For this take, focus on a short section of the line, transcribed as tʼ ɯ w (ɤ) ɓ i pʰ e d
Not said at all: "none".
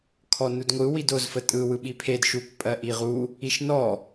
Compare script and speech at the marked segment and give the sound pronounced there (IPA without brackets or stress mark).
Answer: ɯ